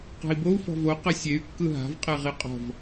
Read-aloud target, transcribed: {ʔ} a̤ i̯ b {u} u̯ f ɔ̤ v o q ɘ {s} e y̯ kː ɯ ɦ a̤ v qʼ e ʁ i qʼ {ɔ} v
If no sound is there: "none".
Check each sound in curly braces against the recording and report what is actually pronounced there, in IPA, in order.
q, o, sʲ, ɔ̤

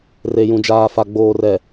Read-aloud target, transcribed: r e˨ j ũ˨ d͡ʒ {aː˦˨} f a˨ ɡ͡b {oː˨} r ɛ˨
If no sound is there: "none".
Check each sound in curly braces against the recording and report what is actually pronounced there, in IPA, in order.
aː˨, oː˨

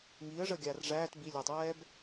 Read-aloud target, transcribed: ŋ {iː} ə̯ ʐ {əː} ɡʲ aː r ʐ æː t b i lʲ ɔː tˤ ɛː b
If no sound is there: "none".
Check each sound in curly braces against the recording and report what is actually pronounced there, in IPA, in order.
iː, əː

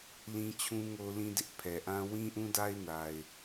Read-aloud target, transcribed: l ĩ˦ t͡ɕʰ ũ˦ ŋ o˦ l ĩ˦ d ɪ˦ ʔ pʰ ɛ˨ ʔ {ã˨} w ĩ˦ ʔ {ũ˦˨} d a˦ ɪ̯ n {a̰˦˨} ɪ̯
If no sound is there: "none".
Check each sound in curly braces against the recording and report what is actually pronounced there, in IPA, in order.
ã˦, ũ˦, a˨

